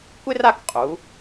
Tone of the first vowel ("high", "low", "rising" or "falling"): high